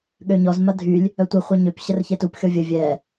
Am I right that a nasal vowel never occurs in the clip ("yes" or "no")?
yes